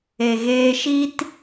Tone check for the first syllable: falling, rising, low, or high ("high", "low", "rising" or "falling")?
low